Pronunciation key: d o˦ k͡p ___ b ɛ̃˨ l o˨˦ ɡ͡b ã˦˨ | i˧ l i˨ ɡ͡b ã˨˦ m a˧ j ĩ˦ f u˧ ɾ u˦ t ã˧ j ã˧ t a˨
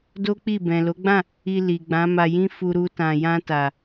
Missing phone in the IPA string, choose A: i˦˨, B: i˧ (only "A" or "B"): A